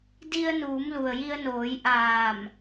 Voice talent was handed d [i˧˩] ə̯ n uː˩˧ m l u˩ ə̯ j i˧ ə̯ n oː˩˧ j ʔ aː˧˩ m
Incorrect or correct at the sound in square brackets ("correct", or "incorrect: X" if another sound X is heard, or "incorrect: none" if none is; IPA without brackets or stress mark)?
incorrect: i˧